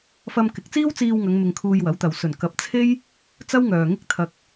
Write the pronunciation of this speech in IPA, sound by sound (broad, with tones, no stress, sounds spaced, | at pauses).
f ɐ˧ m k ɪ˨˥ k̚ t͡s iː˥ w t͡s iː˧ w ŋ ɐ˨˧ ŋ m ɪ˧ ŋ kʰ uː˧ j w ɐ˨˥ w t̪ ɐ˨ w s ɵ˨˩ n k ɐ˨˥ p̚ t͡sʰ e˥ j | t͡s ɐ˥ w ŋ œː˨ ŋ ɪ˥ k̚ t̪ʰ ɐ˧ k̚